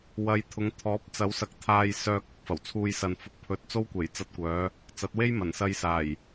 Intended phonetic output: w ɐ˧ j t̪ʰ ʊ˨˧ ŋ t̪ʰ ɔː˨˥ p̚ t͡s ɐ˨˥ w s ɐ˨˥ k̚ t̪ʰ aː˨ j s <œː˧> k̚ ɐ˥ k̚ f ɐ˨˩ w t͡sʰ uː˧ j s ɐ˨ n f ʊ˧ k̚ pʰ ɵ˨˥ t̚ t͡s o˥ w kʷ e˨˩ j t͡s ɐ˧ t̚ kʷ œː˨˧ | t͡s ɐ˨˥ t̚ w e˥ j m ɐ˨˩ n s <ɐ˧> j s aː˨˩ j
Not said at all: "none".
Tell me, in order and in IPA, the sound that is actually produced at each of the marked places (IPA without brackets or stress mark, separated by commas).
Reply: œː˧, ɐ˧